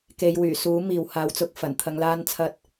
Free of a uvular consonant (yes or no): yes